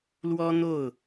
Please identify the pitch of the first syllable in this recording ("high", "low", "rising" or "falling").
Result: high